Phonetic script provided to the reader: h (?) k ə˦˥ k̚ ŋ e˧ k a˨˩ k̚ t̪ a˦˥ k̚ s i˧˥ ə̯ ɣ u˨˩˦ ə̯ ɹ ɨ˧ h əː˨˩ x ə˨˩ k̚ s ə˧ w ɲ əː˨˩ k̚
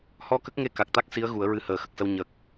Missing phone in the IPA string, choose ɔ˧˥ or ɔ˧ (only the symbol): ɔ˧